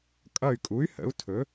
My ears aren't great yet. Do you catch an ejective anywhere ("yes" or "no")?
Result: yes